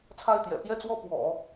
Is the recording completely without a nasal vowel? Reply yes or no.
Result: yes